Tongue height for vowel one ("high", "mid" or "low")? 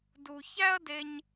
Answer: high